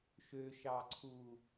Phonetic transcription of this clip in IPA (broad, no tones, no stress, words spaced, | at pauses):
ʃøʃɑǀʰu